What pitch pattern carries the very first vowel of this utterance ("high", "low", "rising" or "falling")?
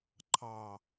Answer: low